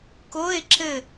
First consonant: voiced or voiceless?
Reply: voiceless